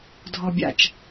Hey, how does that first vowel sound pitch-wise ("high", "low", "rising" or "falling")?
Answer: low